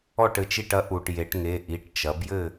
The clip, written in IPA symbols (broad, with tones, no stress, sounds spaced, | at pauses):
ɔ˧˩ ʈ ɘ˩ t͡ʃ i˧˩ ʈ ɐ˩˧ ʔ u˩ ʈ j e˩˧ ʈ ŋ e˩˧˩ ʔ i˩˧˩ ʈ t͡ʃ ɐ˩˧ b j ɘ˥˨